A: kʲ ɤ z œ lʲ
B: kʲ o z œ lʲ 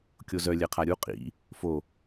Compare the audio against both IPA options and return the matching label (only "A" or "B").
B